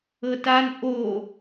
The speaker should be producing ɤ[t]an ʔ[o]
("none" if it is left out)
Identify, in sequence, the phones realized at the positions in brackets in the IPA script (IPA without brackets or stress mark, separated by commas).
t, o